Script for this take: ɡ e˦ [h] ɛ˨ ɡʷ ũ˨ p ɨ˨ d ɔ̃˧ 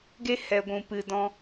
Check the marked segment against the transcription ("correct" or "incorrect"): correct